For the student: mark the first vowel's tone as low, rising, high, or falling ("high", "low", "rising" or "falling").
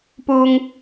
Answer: low